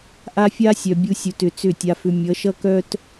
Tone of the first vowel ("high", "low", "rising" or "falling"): high